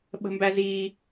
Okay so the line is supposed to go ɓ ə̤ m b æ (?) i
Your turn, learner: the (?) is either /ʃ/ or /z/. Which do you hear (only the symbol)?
z